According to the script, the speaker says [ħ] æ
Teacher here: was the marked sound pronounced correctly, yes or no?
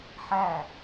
yes